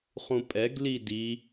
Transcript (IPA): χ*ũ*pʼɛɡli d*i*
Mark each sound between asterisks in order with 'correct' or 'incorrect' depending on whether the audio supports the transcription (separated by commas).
correct, correct